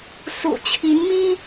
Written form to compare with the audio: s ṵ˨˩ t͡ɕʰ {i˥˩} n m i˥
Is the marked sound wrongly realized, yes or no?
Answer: yes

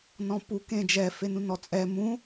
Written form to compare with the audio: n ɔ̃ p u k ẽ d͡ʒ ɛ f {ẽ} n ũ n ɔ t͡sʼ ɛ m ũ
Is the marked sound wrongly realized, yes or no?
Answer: yes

